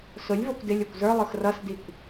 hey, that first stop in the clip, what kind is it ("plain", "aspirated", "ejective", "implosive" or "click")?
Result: plain